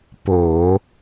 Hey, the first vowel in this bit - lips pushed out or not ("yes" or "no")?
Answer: yes